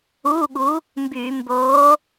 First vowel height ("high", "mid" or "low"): high